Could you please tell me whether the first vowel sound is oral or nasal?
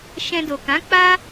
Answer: nasal